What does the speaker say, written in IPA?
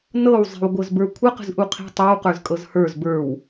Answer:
nɤwzˤi̤w ɡʷɤzbə˞kʷʰə qə̤zʔuqʰi̤ tˤə˞wqə˞z kʼɤzhə˞z bə˞w

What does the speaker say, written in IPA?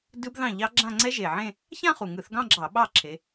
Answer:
dɯ˦˥b ðɑ̃˥˩ʎɑ˦˥ɡ͡ǁã˥˧ ŋ͡ǀɛ˦˥ʒe˨˩ʕẽ˥˧ | çã˥˧χu˨˩ŋɯ˧˩˧θ ɡɑ̃˥˧ɡ͡ǁɑ˧˩˧ ɓɑ˥˩ ǁʰe˨˦

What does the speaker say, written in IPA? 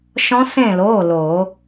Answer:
ʃɔ̃˦˥sẽ˥˨ loː˩˧˩ loː˨˩˦

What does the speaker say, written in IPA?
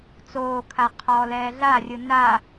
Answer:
t͡soːkʰa qʰɔːlɛːɮarʲɯ na

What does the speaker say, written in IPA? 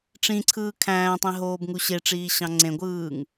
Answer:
ʈ͡ʂĩǀʰɯː kʰæ̃ːtˤĩɦoːbŋu ɕeʈ͡ʂiːɕɑ̃ ŋ͡ǀẽɡʷɯːŋ

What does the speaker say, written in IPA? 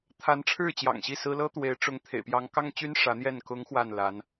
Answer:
t̪ʰa˧˥nʈ͡ʂʰɻ̩˥˩ t͡ɕjɑ̰˨˩ŋɕi˥˩sɹ̩˥ lɤ˥t̪we˧˥ɪ̯ ʈ͡ʂʊ˧˥ŋ t̪ʰḛ˨˩ɪ̯pjɑ˧˥ŋkɑ˥ŋt͡ɕy˥n ʂä˧˥n̪jɛ˥˩n kʊ˧˥ŋ xwa˥˩nla˧˥n

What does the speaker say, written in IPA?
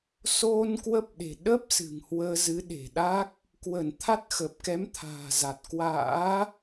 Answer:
so˧n kwə˦˥p̚ɗe̤˨˩ ɗə˦˥p̚ sɨ̤˨˩ŋhwəː˧zɨ˨˦ɗe̤˨˩ ɗa˦˥k̚ | kwə˧˩nt̪ʰa˦˥t̚ xə˨˩p̚kɛ˨˦mt̪ʰa̤ː˨˩za˨˩t̚ kwa̰ː˧˥

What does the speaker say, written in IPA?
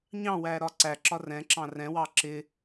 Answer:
ɲɑ̃wæɾɒ ǀæǁɒ rɛ̃ǁɑ̃ rɛ̃wɑ ǁɪ

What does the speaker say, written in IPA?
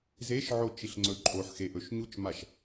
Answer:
zeʃʕo t͡ʃiɬŋ͡ǀɵǃʼoħxe ʔɵʃɲut͡ʃmaʃ

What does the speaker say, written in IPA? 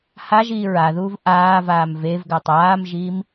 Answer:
ha ʒiːɹaðuːv ʔaːvaːm vevɡatˤ aːmʒiːm

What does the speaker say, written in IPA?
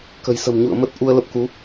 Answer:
kə̤˨˩jsə̤˨˩m ɲṵ˧˨ə̯ mə˦˥t̚ʔu˧ə̯ lə˦˥p̚ ku˨˦

